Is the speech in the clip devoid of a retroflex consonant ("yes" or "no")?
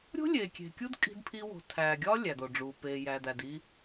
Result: no